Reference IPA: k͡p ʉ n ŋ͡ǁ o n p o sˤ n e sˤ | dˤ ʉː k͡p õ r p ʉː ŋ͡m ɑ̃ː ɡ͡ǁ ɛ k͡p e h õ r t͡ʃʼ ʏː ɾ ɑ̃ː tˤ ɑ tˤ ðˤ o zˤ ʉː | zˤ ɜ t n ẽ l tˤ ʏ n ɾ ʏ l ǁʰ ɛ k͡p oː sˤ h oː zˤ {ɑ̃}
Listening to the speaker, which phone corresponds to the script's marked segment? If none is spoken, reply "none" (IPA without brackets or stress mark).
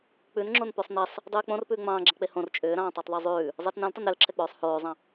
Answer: ɑ̃